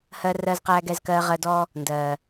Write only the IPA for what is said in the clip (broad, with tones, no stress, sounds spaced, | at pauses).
h ɜ˦ r ɜ˦ z q æː˦ ɡ ɛ˦ z k ɜː˦ ʁ ɜ˦ d ɔ˦ | n d ɜː˨